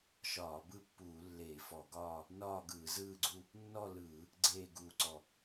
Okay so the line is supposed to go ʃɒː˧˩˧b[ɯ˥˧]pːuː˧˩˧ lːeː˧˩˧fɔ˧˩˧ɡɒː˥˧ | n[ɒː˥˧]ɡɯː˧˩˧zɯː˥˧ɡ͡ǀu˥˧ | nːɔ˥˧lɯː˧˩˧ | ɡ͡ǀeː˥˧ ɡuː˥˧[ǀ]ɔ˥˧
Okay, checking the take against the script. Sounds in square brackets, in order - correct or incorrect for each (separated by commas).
correct, correct, correct